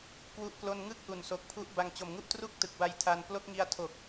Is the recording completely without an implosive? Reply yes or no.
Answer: yes